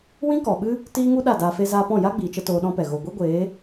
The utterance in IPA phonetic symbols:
wĩ˦kɔ˨ɓɨ˦ | tiː˦ŋu˦ ɗa˦˨daː˧fe˦ zaː˧pɔ̃˦˨ ja˦ɡ͡biː˨t͡ʃə˧ toː˧ɗɔ̃˦pɛ˨ ɣo˨ɡʷi˦ɡʷeː˨˦

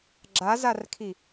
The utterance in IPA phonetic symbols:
ɡ͡ǁazarkʰi

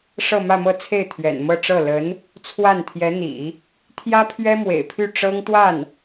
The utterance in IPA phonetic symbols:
ʂɤ˥˧mä˥˧mɤ˥˧t͡sʰe˥˩ɪ̯ t̪ʰɥɛ̰˨˩n mɤ˥˧ʈ͡ʂɤ˥˩ lə˧˥n | t͡sʰwa˥˩n t̪ʰjɛ˧˥n̪ḭ˨˩˦ | t̪ʰjä˥pʰɥɛ˥mwḛ˨˩ɪ̯pʰy˥˩ ʈ͡ʂɤ˥ŋt̪wa˥˩n

